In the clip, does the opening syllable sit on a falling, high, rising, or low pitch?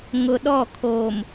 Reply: low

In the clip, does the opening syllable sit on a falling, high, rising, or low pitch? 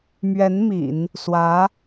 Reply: rising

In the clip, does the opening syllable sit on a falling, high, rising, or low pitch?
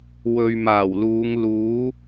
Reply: low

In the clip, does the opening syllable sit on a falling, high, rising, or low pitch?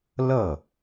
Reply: falling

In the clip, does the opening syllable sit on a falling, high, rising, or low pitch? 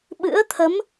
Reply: rising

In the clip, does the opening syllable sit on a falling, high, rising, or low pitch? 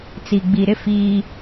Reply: low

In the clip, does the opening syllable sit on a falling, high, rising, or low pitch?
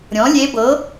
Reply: rising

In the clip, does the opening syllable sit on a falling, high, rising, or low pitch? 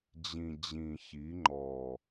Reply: low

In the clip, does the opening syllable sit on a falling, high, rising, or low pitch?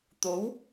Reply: rising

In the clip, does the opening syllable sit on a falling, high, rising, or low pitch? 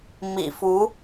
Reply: low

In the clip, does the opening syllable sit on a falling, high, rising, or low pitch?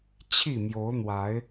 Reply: falling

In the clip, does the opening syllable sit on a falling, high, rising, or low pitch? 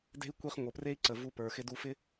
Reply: high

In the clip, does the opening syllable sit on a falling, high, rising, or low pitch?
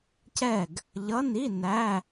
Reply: falling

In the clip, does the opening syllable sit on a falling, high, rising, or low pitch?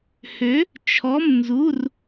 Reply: rising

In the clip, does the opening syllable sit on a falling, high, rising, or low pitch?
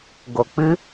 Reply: low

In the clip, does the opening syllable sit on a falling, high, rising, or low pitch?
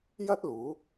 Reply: high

